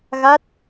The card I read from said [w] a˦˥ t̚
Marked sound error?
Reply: yes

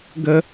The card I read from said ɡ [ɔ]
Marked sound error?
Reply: yes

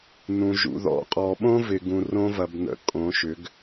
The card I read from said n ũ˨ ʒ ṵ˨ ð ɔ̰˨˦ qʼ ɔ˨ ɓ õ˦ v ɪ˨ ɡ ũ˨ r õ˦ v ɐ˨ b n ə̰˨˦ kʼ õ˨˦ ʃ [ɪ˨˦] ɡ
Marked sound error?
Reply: yes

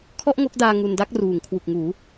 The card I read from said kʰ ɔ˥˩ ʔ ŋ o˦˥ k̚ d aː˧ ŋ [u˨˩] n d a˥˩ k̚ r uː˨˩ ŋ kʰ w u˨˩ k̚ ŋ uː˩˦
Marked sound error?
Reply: yes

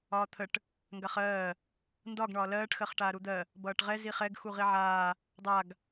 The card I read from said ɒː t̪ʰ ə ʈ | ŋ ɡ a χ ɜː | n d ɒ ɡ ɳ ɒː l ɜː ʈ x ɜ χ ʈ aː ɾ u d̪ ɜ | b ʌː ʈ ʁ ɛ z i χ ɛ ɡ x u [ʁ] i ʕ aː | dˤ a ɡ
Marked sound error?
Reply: no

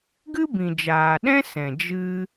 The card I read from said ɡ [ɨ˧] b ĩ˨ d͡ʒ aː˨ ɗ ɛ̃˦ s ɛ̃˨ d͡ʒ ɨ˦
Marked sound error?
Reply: yes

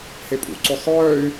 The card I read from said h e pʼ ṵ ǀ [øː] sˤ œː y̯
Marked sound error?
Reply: yes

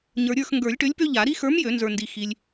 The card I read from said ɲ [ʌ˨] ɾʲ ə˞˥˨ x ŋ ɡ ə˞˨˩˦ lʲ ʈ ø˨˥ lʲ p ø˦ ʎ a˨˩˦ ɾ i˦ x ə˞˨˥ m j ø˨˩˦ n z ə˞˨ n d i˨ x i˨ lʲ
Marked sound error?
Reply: yes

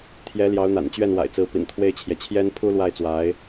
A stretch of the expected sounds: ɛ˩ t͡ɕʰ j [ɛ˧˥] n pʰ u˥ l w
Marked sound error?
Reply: yes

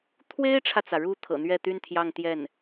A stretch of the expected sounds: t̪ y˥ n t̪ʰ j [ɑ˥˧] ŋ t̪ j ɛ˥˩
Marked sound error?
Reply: no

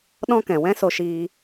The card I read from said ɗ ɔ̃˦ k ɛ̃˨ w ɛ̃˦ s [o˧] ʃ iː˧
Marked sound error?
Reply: no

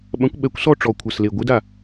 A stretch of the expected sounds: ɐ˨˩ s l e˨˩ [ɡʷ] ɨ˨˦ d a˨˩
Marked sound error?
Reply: no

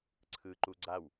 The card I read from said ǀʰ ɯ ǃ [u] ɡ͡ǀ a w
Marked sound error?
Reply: no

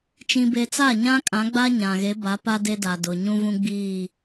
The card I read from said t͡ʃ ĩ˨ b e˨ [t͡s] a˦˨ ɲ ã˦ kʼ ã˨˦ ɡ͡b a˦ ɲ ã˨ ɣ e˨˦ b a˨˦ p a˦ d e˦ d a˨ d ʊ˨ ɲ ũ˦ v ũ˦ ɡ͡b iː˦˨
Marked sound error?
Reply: no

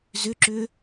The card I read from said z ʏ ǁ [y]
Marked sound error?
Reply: yes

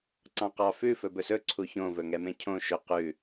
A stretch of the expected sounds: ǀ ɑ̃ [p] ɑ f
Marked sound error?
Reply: yes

